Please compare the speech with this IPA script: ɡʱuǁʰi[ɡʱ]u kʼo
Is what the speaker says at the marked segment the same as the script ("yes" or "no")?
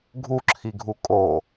yes